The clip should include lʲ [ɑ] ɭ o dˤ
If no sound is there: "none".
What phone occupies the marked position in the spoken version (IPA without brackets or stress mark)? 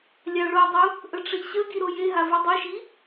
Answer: ɑ